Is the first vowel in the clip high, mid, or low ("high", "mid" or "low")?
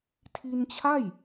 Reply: high